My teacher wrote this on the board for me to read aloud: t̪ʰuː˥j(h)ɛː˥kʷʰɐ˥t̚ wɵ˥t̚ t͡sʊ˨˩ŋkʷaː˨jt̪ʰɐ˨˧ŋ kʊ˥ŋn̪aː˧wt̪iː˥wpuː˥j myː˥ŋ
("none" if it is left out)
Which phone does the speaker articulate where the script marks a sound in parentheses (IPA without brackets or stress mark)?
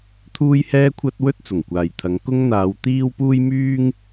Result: h